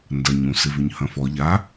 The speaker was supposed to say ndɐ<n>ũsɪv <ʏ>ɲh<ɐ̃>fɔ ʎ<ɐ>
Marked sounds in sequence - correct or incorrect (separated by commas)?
incorrect, correct, correct, incorrect